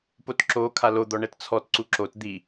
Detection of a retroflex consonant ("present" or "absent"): present